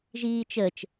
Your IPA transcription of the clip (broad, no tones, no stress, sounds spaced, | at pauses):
ʒ iː t͡ʃ əː t͡ʃ